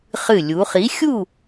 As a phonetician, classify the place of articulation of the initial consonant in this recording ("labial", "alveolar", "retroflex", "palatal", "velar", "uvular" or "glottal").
uvular